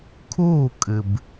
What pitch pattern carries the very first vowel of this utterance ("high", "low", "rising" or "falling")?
falling